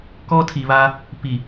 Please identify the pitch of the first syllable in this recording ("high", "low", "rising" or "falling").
high